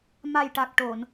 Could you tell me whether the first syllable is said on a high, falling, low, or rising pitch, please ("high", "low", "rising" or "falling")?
low